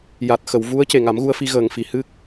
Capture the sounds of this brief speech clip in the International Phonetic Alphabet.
ja˨˩t̚xə˨˩˨w vu˧˥ə̯ ce˨˩ŋa˨˩˦mɣu˧ə̯fi˧ ɣəː˨˩ŋ fi˨˩ hɨ˦˥k̚

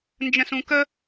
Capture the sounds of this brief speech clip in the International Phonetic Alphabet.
nd͡ʒə̃sũkə

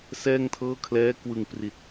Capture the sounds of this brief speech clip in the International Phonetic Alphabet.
sɛː˥˩ŋtʰɤː˥˩ kʰlɛː˦˥kwɯ˨˩ŋpri˨˩t̚

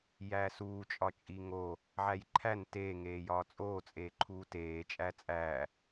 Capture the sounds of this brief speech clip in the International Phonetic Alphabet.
jæːsuː t͡ʃʼɒt͡ʃʼiŋo | ʕæjǃʰæn teː ŋeːjɒːt͡sʼoː t͡sʼeːǃʰuːteː t͡ʃʼæt͡sʼæː

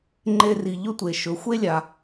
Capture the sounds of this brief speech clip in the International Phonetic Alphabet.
ŋ͡ǃe˧ri˩ ʎɵ˥tʷe˩ ʃɵ˩˧xʷe˥lʲa˩

